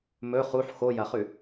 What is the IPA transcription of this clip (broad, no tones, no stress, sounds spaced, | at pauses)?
m ɵ χ u ħ x o j ɐ χ ʉ